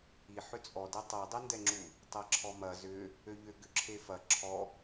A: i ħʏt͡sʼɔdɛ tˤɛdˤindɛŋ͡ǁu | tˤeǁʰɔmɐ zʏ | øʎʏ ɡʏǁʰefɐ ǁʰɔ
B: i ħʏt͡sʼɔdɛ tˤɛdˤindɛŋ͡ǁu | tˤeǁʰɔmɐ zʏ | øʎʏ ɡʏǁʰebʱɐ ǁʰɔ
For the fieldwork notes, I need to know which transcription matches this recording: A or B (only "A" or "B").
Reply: A